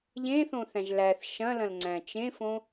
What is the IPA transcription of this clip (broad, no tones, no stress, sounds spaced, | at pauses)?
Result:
ʎ ẽ θ õ θ æ̃ ʒ l æ θ ʃ ɐ̃ l ɐ̃ l ŋ͡ǀ æ̃ t͡ʃ ẽ f õ